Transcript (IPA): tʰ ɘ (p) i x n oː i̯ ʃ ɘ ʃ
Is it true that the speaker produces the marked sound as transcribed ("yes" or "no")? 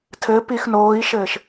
yes